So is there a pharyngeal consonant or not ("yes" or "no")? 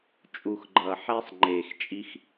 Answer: yes